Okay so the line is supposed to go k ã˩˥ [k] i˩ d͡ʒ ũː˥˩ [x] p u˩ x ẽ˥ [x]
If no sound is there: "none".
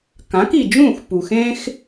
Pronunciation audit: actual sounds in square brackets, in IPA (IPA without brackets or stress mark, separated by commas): k, x, x